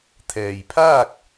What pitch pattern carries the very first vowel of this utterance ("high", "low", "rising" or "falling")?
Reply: low